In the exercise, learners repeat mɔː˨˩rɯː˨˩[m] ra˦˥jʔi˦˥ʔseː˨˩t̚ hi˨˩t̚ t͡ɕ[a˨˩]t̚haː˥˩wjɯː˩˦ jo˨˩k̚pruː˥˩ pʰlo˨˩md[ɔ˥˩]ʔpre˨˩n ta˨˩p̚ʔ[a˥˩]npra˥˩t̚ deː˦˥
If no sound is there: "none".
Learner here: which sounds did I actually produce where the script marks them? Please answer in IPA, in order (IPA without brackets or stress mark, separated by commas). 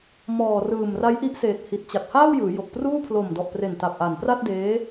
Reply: m, a˨˩, ɔ˨˩, a˨˩